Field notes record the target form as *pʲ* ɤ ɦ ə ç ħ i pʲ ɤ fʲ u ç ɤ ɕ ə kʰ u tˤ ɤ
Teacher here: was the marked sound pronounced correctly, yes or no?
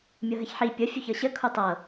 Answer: no